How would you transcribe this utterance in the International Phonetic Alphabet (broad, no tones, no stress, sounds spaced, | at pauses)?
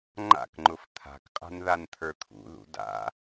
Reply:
ŋ͡ǃ a̰ k ŋ͡ǃ ʊ f t̪ʰ a̤ k qʼ a̤ n ð a n t̪ʰ ə˞ t̪ʰ ṵ ð ṵ d a̰